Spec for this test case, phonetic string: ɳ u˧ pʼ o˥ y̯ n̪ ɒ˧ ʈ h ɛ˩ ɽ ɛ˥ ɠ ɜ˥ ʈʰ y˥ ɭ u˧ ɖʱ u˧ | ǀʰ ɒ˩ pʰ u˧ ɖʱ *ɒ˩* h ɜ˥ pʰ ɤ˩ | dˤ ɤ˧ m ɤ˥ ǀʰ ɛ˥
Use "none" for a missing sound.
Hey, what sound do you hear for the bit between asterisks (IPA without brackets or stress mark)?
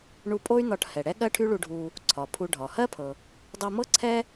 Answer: ɒ˩